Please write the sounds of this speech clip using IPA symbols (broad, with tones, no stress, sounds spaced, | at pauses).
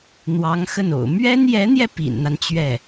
n̪ w ɑ˧˥ ŋ x ə˥˩ n o̰˨˩ ʊ̯ m ɥ ɛ˥ n j ɛ˧˥ n̪ j ɛ˧ p ḭ˨˩ n n̪ a˦ n t͡ɕ ɥ ɛ˥˩